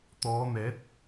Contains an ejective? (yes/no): no